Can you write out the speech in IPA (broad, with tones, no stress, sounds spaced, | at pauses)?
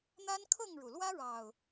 n̪ a˦ n kʰ ɤ˥˨ ŋ ɻ u˩ l w ä˦ ɻ ɑ˨˩ ʊ̯